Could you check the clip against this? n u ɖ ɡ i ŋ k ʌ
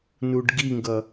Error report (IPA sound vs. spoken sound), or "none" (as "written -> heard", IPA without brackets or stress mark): k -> ɡ